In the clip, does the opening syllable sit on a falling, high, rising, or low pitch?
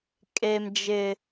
high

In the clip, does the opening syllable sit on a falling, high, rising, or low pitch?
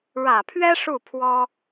low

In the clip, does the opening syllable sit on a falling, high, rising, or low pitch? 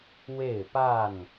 falling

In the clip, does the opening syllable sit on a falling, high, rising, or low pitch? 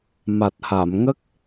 low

